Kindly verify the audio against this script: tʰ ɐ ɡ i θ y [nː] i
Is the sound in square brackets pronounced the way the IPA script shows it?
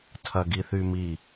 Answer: no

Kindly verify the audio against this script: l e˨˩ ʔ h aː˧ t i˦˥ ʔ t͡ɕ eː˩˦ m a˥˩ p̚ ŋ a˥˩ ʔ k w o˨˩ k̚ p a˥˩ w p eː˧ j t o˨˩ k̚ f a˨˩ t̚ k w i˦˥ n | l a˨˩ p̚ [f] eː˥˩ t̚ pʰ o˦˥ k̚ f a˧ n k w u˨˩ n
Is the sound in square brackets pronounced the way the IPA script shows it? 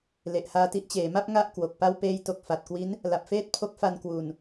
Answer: yes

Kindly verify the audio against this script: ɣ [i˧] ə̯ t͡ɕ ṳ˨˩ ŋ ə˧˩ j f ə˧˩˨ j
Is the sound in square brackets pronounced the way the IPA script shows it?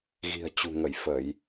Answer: no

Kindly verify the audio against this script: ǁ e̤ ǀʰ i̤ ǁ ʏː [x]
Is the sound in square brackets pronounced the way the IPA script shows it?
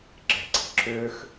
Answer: yes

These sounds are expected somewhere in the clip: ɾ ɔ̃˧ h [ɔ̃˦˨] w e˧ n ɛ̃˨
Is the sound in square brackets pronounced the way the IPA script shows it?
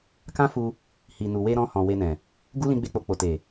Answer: no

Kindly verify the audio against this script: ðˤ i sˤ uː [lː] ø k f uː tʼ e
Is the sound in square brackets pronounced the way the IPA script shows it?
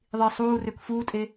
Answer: no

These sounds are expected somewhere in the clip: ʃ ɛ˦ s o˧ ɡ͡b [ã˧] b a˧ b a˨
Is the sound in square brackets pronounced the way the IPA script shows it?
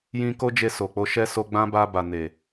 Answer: no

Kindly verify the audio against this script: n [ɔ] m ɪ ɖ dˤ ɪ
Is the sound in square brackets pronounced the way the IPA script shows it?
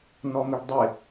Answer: yes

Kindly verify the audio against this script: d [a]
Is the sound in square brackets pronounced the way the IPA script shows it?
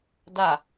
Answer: yes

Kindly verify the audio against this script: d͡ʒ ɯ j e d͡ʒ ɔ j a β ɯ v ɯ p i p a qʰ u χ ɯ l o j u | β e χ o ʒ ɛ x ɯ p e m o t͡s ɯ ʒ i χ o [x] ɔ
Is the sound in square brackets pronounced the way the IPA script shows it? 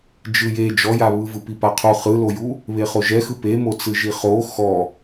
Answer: yes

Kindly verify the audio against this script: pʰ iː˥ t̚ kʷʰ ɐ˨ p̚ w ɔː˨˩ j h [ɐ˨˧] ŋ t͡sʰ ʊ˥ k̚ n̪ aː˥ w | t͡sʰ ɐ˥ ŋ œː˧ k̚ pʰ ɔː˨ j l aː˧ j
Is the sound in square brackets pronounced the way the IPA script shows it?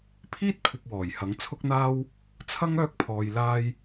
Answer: no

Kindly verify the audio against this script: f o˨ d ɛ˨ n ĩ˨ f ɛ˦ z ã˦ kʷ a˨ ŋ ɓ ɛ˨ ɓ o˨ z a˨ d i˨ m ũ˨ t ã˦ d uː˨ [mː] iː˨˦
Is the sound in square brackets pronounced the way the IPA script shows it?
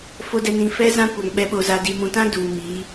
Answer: no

